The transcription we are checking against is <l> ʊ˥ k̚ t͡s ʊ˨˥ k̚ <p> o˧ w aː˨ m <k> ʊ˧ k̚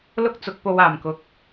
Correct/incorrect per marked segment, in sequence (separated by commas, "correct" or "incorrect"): correct, correct, correct